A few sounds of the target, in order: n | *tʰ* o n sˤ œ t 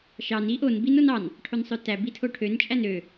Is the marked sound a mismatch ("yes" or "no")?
yes